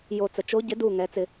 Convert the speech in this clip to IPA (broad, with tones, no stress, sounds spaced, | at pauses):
j o˧˩ t͡s ə˩˧ t͡ʃ o˨˥ ɟ ɪ˨˥ d u˥˩ ŋ ɛ˩˧ t͡s ɪ˧˩˧